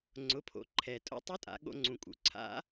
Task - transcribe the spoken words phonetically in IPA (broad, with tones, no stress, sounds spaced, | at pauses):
ŋ͡ǀ ʊ˩˧ pʰ o̰˩˧ ǃʰ ɛ˩ tʼ o̰˧˥ tˤ ʊ˧˥ tʼ a̰˩˧ ɠ o̰˧ ŋ͡ǀ ũ˩ kʼ ṵ˩ ǀʰ a̰˧˥